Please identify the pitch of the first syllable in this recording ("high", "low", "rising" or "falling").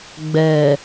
low